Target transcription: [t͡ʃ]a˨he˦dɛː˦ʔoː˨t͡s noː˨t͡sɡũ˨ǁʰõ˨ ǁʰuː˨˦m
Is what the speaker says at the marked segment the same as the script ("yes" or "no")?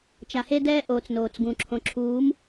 yes